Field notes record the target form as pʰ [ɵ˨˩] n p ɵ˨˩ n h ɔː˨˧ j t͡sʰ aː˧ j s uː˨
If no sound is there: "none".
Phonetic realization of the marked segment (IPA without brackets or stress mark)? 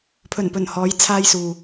ɵ˨˩